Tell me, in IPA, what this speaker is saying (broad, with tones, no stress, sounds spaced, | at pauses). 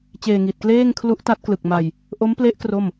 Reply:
t͡ɕ eː˧ ŋ i˨˩ t̚ k l eː˥˩ ŋ kʰ l u˦˥ ʔ t a˦˥ t̚ k l ɯ˨˩ k̚ m a˧ j | ʔ o˦˥ m p l e˦˥ ʔ k r o˥˩ m